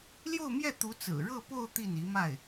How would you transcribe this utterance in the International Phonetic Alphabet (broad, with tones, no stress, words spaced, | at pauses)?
ljo˥˧ʊ̯mjɛ˥˩ t̪u˧˥t͡sɹ̩˨˩ɻɤ˥˧po˥˧ʊ̯ t̪i˥˩ni˧˥ma˥˩ɪ̯